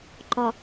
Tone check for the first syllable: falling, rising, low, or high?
low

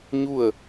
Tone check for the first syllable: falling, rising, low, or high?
falling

